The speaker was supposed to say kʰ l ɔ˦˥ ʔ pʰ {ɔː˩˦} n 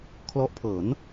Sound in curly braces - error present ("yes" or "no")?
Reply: yes